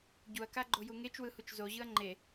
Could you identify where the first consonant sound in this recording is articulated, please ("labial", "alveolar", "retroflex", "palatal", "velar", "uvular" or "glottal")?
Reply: palatal